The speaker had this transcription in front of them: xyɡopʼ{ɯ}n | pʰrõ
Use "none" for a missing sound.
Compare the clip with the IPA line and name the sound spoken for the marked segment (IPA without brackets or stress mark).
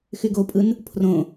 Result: ɯ